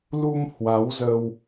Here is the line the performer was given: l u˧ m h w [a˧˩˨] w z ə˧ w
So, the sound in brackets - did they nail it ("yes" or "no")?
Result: no